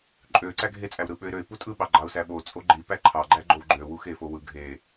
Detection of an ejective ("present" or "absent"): present